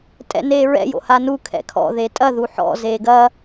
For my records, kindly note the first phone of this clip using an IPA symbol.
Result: tʼ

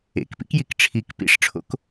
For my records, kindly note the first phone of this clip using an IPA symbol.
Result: ḛ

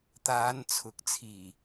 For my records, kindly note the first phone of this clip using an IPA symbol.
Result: t̪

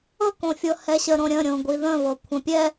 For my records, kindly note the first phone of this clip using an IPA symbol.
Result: ɤ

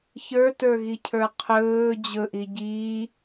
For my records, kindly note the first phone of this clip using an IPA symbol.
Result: ç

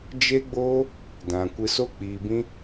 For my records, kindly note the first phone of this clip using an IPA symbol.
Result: d͡ʒ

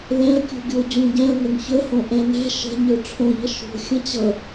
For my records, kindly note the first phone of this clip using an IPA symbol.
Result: l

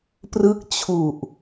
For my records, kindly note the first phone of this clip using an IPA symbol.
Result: p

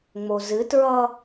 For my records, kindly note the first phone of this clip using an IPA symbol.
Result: ŋ͡m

